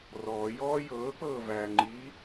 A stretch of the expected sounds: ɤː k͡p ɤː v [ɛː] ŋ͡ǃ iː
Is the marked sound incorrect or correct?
incorrect